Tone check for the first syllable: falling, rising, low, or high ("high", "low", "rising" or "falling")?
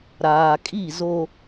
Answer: low